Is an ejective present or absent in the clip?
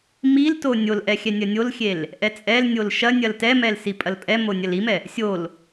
present